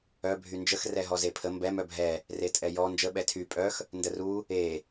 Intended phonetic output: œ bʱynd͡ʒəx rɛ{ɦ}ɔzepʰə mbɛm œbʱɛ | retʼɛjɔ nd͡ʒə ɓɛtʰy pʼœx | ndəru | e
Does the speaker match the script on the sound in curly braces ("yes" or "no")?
yes